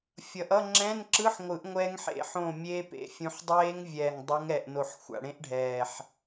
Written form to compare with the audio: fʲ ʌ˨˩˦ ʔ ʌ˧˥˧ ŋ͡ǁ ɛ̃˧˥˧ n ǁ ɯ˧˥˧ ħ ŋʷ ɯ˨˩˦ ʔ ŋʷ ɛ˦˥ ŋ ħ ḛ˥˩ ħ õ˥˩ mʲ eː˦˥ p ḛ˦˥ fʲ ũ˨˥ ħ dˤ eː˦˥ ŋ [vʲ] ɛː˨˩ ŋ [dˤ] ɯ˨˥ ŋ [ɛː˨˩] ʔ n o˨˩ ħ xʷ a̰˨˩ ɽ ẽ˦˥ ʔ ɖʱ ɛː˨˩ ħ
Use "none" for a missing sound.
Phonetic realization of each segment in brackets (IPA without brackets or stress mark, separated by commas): vʲ, dˤ, ɛ˨˩